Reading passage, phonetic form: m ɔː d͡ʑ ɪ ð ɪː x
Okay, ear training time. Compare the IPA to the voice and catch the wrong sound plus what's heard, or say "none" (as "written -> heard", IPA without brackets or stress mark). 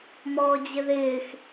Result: none